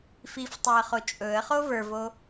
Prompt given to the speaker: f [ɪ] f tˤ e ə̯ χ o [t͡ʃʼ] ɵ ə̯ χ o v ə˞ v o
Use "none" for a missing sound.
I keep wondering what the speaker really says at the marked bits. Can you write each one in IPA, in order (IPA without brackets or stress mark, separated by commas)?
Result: i, t͡ʃʼ